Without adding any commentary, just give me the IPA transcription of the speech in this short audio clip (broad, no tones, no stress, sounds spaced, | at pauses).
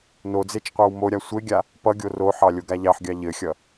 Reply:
n o d͡z e t͡ʃ qʷ ɑ w m o ɾʲ a sʷ e ɡʲ a | p ʌ ɡʲ o r o ħ ɑ lʲ o ɡ a ʎ ɑ ħ ɡʲ ɑ ʎ ɘ xʲ ʌ